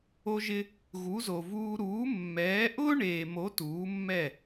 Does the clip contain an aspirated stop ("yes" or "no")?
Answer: no